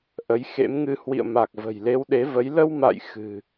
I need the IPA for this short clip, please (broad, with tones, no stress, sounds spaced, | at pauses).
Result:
ʔ ə˨˦ j x ḛ˧˥ m ŋ ɨ˧ h w ḭ˧˨ ə̯ m a˨˩ k̚ v ə̤˨˩ j l e˨˦ w ɗ e˨˦ v ə˨˦ j l ə˧ w m a̰˧˨ j x ɨ̤˨˩